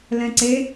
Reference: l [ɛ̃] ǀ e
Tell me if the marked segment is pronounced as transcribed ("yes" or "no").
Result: yes